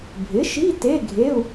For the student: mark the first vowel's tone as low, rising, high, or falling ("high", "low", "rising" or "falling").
rising